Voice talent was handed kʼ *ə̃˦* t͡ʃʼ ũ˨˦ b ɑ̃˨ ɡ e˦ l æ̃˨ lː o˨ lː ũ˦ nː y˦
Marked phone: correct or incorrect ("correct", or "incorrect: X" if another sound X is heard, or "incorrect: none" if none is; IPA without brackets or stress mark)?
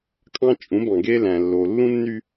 incorrect: ɑ̃˦